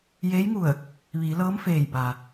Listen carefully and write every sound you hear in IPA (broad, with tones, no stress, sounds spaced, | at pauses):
j eː˧˥ j ŋ u˧˩ ə̯ | ʋ iː˩˧ l ɤː˧˥ m f eː˧˩ j b a˩